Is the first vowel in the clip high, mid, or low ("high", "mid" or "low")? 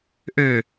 mid